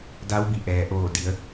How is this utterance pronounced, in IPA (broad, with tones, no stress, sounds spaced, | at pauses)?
d a˧˥ w b i˩ ʔ ɛː˩ ʔ oː˧˩ d i˩˧ ə̯